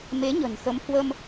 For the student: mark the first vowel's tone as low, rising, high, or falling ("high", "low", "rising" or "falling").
rising